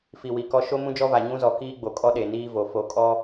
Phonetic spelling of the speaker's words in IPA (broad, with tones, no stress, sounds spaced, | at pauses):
f i˨ w i˨ k ɔ˦ ʃ o˦ m ũ˦ d͡ʒ ɔ˦ v a˨ ɲ ũ˦ z ɔ˨ k iː˦ ɡ͡b o˨ kʼ ɔ˦ ɗ e˨ n iː˦ v o˨ f o˨ kʼ ɔ˦